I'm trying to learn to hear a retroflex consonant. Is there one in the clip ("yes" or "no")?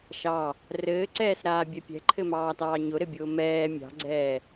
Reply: no